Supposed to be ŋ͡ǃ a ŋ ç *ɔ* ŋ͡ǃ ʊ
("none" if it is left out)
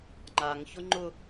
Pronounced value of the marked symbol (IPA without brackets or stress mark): ʊ